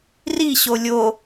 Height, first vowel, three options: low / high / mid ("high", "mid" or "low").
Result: high